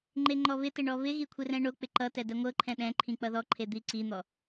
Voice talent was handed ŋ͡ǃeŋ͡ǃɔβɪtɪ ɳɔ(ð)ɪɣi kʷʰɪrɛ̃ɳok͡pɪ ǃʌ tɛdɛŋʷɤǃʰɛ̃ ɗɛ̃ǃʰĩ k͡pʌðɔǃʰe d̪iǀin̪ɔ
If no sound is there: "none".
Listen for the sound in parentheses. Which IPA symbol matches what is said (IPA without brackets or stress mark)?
β